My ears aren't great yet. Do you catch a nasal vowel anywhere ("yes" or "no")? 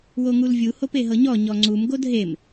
no